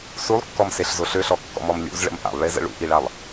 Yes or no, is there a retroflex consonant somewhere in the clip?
yes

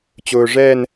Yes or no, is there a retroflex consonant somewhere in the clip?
yes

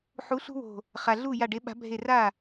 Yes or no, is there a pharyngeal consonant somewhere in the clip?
yes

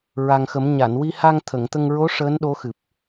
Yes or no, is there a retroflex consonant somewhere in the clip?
yes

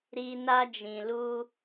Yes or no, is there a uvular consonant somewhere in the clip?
no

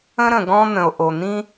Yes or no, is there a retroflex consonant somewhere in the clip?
no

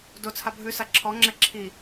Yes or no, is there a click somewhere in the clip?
yes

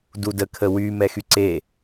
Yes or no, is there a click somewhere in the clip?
yes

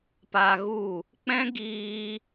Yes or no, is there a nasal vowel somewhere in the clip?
yes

